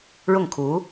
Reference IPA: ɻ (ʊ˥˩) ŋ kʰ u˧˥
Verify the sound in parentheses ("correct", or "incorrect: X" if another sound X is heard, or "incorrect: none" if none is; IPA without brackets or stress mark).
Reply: correct